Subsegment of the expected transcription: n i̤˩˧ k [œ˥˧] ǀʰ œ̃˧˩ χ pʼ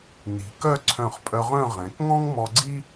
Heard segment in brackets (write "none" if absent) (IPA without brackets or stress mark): œ˥˧